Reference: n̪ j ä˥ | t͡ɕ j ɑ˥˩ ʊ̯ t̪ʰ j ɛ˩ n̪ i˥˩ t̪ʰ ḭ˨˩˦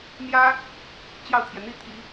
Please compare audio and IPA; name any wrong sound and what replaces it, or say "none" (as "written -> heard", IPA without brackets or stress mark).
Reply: none